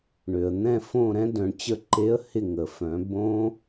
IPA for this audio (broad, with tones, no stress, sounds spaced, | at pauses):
ɳ ø˩ ə̯ n̪ ɛ̃˦˨ f õ˦˨ ɾ ɛ̃˦˥ d œ̃˩˧ ɳ t͡ɕ ə˦˨ ǃ e˦˥ ə̯ h ɪ˦˨ ŋ ə˩ f œ̃˩˧ b õ˦˥